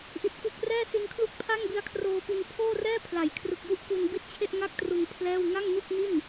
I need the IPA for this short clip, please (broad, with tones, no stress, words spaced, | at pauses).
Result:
ʔi˨˩t̚ku˨˩k̚ rɛː˥˩si˧nkʰlu˥˩k̚ pʰa˥˩ŋbi˧a̯kʰroː˧pi˧n pʰoː˥˩rɛː˥˩pʰla˩˦j kʰrɯ˨˩k̚ju˥˩ʔ ku˧n bi˦˥t̚t͡ɕʰe˥˩ʔ ŋa˥˩k̚tru˧n pʰlɛː˥˩w ŋa˥˩ŋnu˥˩k̚ni˥˩n